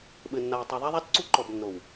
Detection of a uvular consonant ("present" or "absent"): absent